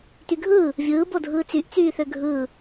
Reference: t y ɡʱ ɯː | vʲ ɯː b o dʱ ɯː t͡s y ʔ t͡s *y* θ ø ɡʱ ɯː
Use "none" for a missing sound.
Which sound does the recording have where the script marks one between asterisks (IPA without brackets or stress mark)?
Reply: yː